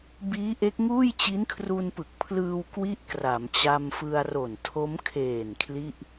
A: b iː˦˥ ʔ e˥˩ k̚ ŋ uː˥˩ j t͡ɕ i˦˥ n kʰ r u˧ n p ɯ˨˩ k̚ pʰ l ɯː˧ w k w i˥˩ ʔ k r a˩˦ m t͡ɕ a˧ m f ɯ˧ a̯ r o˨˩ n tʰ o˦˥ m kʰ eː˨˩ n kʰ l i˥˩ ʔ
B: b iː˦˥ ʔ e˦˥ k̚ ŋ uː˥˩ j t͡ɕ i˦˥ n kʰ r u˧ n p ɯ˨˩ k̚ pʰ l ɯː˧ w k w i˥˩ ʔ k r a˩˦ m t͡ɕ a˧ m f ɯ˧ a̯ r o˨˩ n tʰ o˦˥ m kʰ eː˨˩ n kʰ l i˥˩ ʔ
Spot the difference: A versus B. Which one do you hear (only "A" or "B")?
B